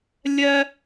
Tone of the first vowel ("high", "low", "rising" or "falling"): high